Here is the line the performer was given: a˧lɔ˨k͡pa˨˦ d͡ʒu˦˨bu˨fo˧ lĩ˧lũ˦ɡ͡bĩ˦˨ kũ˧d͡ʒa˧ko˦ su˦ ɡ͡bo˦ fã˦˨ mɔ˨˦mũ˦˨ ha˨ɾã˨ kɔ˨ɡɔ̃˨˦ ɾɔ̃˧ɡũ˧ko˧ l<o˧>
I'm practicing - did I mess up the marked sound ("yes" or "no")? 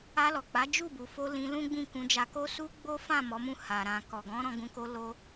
no